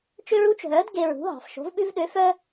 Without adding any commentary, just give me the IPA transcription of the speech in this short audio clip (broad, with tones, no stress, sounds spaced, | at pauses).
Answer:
t͡ʃ ø˦ ɹ u˨˥ t͡ʃ ɦ œː˨˥ d ɡ e˦ ɹ ṳ˨˥ ɦ ɑ̤˨˩ f ʃ o̤˨˥ v ɓ ʉ˦ v ɗ ø˨˥ f œː˦